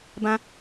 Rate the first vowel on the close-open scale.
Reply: open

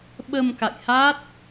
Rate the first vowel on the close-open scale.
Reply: mid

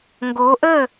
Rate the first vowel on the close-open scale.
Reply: mid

